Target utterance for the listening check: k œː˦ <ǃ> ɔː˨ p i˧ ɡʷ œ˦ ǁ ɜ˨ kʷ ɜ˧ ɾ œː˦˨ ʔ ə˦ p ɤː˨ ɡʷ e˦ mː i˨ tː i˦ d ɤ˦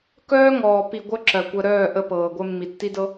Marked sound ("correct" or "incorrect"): incorrect